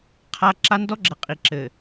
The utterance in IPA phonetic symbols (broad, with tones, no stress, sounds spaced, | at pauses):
qʰ a˦ ǁ a˦ n d ɔ˦ ɡ͡ǁ ɘ˨ qʼ i˨ ǁ ɘ˨